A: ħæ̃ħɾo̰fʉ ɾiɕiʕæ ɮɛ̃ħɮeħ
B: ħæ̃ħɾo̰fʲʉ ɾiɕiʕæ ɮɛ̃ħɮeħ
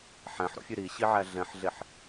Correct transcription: B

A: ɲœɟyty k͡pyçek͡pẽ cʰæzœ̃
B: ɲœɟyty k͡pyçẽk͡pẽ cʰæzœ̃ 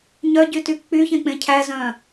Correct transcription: B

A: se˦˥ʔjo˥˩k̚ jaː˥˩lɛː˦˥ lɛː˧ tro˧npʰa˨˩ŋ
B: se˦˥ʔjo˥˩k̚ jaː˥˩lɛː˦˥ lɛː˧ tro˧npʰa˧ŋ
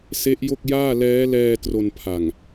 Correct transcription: A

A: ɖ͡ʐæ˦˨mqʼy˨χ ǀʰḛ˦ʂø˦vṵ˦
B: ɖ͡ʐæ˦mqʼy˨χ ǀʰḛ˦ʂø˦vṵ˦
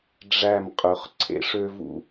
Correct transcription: A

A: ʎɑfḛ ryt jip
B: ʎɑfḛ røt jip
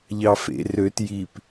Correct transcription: B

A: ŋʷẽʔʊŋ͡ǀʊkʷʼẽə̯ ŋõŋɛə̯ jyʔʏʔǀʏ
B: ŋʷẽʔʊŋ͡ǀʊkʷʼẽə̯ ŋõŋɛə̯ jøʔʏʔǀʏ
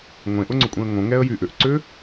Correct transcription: A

